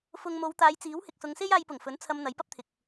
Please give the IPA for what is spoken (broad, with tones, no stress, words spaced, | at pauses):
fʊ˨ŋ mo˨˧wt̪aː˨˧jt͡siː˨˥w hɪ˨k̚sʊ˨˧ŋ se˥jaː˧jpʊ˨˩ŋfɵ˨˥n t͡sʰɐ˧m n̪ɐ˨˥jpɐ˥p̚t̪ʰɪ˨k̚